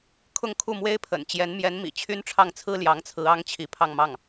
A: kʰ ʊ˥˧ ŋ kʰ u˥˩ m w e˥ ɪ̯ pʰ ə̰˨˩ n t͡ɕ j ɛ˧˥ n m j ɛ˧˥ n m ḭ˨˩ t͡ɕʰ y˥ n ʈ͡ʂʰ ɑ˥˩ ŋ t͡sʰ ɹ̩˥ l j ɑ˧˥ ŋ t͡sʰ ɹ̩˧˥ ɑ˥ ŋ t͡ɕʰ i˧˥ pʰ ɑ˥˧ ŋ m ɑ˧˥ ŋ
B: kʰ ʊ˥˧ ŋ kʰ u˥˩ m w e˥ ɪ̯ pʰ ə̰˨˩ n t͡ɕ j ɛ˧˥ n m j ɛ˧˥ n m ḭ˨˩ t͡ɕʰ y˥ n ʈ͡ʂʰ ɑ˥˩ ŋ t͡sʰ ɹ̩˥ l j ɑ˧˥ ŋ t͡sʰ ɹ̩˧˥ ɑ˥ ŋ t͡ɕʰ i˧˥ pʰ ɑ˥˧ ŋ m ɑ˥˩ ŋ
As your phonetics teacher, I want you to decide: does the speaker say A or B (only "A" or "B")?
B